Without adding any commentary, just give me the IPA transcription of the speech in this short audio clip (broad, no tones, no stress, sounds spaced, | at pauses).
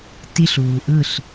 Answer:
t i ɬ uː ʔ ɯ ɬ